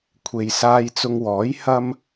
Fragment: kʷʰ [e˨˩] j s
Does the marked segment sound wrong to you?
yes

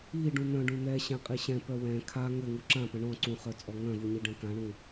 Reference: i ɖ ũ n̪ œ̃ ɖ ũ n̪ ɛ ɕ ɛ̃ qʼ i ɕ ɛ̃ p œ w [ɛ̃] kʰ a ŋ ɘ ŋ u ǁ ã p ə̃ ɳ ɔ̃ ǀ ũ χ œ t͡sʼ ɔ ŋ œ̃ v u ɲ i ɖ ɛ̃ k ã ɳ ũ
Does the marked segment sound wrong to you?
no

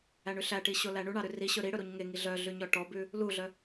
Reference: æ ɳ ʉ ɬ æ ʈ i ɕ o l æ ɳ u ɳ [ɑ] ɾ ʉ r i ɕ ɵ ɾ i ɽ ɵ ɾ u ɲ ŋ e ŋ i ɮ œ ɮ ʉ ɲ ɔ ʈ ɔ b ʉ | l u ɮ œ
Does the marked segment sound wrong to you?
no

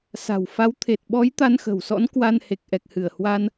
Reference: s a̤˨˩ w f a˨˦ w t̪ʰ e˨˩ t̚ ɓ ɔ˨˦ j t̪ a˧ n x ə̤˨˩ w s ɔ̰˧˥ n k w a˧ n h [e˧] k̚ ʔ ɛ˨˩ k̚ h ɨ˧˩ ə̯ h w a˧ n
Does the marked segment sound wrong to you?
yes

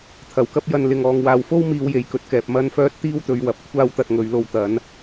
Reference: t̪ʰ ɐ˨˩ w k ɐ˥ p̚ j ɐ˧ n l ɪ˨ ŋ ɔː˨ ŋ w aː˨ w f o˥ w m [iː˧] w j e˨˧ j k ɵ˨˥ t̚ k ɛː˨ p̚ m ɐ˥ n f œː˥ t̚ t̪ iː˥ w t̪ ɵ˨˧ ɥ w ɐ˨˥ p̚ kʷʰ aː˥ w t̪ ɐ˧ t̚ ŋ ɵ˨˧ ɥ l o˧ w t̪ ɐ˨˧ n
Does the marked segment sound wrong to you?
no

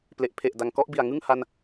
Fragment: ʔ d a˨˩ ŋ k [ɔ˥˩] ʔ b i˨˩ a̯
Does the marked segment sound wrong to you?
no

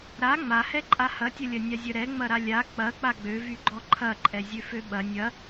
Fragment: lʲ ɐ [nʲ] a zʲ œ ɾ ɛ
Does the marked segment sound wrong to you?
no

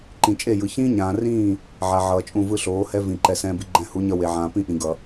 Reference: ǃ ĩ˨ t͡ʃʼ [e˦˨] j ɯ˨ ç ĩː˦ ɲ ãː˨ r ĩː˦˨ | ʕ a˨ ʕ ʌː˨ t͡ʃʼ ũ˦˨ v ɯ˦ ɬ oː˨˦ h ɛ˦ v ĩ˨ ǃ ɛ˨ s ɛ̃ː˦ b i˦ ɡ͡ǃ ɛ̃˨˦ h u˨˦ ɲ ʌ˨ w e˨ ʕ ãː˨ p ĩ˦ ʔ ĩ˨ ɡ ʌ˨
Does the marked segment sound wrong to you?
no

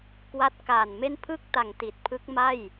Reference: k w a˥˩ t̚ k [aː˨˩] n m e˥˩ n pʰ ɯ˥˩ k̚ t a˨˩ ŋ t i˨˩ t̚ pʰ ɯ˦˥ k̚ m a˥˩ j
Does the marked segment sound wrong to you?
no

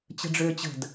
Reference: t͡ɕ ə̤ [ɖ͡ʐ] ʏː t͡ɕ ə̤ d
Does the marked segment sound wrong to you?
no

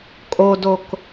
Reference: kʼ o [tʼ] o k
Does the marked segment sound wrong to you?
yes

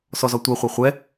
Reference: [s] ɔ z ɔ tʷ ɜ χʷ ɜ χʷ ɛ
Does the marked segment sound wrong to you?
no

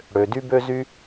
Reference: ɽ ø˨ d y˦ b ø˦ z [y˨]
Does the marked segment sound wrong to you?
yes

